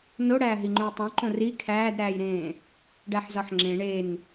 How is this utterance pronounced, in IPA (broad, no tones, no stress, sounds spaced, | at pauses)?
n o ɽ æː ɦ i ŋ͡ǃ ũ i̯ tˤ ũ ǃ õ r i kʰ æː d ɾ æː j ɾ ẽː | ɖ æ ħ z ɒ ħ ŋ͡ǁ ẽ ɳ e n